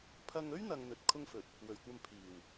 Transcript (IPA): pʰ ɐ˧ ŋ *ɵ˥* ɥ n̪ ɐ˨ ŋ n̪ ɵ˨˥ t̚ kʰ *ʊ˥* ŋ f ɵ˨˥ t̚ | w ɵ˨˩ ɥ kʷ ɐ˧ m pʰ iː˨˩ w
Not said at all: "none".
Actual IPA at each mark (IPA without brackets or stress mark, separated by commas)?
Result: ɵ˥, ʊ˥